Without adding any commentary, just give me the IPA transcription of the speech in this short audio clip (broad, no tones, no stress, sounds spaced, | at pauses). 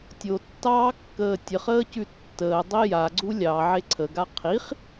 tʲ o tː ɑː kː əː tʲ ə χ əː c ʉ tː əː dˤ i j a ɡ͡ǀ u lʲ ɑ ʕ e ǀʰ ə ɡ a qʰ i χ